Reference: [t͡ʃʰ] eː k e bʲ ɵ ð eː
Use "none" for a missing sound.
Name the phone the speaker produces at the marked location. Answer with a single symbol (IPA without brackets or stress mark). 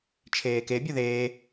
t͡ʃʰ